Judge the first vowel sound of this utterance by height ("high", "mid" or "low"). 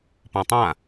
mid